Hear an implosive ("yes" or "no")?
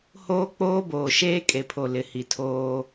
no